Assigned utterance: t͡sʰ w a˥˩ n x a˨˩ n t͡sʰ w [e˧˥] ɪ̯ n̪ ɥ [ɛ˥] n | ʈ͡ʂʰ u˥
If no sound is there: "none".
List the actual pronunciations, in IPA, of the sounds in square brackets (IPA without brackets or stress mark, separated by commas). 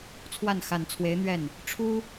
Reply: e˧˥, ɛ˥˩